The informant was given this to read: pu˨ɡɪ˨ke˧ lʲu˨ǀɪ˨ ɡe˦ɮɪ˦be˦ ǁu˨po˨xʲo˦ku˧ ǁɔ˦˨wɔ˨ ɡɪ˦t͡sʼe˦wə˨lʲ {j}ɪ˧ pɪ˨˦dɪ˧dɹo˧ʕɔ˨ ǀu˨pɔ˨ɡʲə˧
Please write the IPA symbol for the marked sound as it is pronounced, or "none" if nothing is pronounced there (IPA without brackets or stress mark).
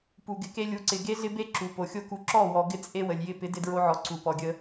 j